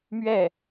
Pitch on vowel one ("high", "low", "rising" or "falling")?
falling